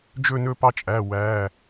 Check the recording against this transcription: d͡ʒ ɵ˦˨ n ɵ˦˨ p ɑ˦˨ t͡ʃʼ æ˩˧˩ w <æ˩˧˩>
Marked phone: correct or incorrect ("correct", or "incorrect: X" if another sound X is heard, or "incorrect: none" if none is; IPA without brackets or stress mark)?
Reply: correct